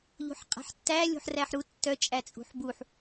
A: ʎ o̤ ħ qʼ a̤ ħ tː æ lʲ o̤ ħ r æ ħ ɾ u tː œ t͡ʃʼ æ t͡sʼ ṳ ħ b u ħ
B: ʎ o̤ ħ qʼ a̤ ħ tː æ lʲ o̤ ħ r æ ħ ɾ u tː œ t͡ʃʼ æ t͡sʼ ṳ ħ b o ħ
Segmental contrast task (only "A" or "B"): A